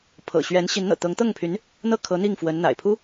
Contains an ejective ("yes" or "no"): no